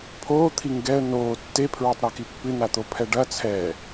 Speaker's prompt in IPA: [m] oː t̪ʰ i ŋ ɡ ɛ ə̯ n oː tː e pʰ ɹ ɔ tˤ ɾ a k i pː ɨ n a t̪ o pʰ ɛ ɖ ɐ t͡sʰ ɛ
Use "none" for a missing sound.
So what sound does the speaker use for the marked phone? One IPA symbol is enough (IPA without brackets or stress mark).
pʰ